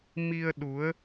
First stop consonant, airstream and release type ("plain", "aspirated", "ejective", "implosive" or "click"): implosive